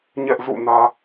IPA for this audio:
ɲ ɛ˦ ʔ z ṵ˦˨ n ä˦

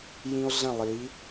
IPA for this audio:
j ĩ˧ o̯ ɮ ə̃˦˨ lˠ i˨˦

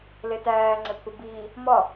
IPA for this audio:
l e t æː ŋ͡ǀ e pʰ u b iː | m ɒ

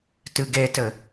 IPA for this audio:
t ɨ ɡ e t ɘ

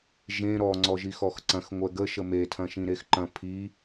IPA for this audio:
ʒ ẽ ɾ ɔ ŋ͡ǀ ɔ ʒ i x ɔ x ǀ ɐ̃ x ŋʷ ɛ ɡ ə ʃ ə m e tʰ ɐ̃ ʃ ĩ ɾ e x ǃ ɐ̃ pʰ i

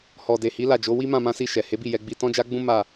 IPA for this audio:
h ɔ˨ d e˨ h i˨˦ l a˦˨ d͡ʒ o˨˦ w i˦ m ã˦˨ m ã˧ s i˧ ʃ ɛ˨ h e˨˦ b i˦˨ j ɛ˧ ɡ͡b i˧ t ɔ̃˦ d͡ʒ a˦ ɡ͡b ũ˦ m a˦˨

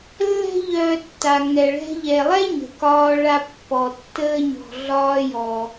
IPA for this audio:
lː ɛ̤˥ ʎ œː˧ tː a˩ ŋ ɛ˩ ɭ ɛ̤˧ ʎ ɛ˩ lˠ ɛ˥ ɲ ə̤˩ k ɒː˧ ɭ a˧ pː ɔ˩ tː əː˧ ɲ ɔ̤˩ ɮ ɒː˧ j ɔ˩

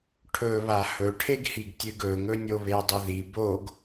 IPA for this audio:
ʈʰ ɵ β a h ɵ ʈʰ e ɡ h i ɡ tʲ ɨ ɡ ɵ ŋ ɵ nʲ o β e dˤ ɵ ð i b o ɡ

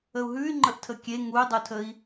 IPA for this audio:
ə u̯ ɦ ʉ y̯ ŋ͡ǃ ə ʔ tʰ ə kʲ e ŋ u y̯ dˤ u tʰ ə i̯

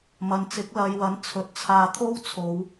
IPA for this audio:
m ɐ˨˧ n t͡s ɪ˨˥ k̚ l ɐ˨˧ j w ɐ˨˥ n t͡sʰ ɵ˨˥ t̚ t͡sʰ aː˧ t̪ʰ o˥ w t͡sʰ o˨˧ w

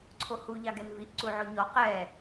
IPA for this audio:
ǀʰ o h u ʎ ɑ ɡ ɛ n v i ʔ ǀ u ʕ o ɲ ɔ q ɛ

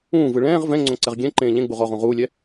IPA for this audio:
ũː v ɯ ɭ ɛ̃ː ʁ v ɛ̃ ŋ͡ǀ õ ǀ ɛ ʁ ɡʲ ɛ̃ ǃ ẽː ʎ ẽ ɡ͡b u ʁ ɔ ʁ ũ ʁ uː lʲ ɛ

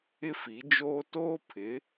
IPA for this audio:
ɪ˦ f i˨˦ d͡ʒ oː˦ t oː˦ pʰ ɪ˨˦

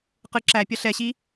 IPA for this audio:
q ɯ ǁ æ pʲ ʌ ɬ ɛ ɕ i

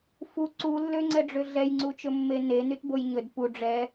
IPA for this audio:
f u ǀ u lː ø ŋ͡ǀ ɛ ɖ͡ʐ ø ɮ ɛ j ŋ͡ǀ u t͡ʃ ɵ mː e n e n y t b o j ɲ ɵ d p u ɖ͡ʐ ɛ

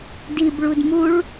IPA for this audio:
d i b ɭ u d m u ɭ

